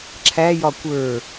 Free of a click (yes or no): no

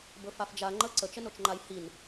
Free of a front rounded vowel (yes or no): yes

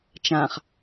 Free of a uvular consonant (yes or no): no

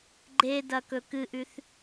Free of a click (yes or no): no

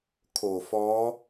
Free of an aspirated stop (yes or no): no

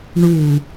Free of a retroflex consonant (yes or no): no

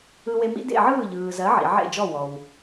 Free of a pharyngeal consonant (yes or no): no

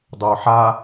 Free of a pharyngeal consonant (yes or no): no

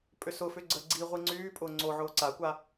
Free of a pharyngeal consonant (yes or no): no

